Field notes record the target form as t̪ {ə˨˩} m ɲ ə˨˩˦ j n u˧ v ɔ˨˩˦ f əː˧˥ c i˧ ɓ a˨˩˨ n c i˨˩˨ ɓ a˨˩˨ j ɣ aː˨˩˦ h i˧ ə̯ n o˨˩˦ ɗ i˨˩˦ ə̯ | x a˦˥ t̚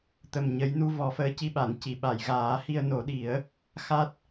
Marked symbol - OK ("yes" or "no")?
yes